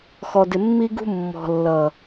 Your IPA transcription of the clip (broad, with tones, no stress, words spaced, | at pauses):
xɔ˨dɪ˨ mːi˦ɡṳ˦ mːɔ̤˨lːʌ˨